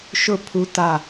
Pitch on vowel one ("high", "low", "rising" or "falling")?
falling